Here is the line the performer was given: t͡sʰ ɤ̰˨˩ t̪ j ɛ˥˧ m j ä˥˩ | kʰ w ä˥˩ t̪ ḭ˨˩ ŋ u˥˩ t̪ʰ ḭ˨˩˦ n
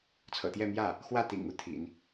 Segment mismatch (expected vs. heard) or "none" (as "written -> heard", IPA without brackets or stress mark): kʰ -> x